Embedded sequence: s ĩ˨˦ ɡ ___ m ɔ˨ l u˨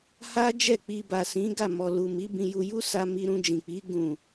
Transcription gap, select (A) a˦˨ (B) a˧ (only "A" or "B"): A